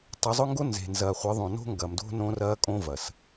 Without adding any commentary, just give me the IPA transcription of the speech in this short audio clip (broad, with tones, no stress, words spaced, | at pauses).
tˤʏ˨˦zˤʊ˦ŋɡo˦ nze̤˨nzɐ˨χʷɪ˨˦ðˤõ˨ no̤˦ŋɡɐ˨mdo̤˦ nõ˦rɐː˦kʼõ˦ vɐ˨s